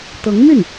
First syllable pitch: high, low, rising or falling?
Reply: rising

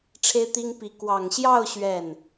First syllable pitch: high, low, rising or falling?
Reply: high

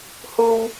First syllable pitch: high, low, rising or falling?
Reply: high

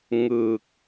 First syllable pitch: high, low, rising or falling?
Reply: low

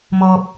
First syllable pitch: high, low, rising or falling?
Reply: low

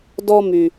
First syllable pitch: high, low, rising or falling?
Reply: high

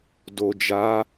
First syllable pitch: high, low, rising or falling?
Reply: low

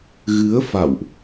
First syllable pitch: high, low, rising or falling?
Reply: rising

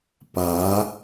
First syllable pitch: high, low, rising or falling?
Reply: rising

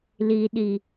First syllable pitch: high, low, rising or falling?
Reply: low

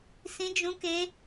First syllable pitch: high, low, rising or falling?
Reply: high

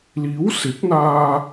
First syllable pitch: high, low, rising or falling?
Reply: rising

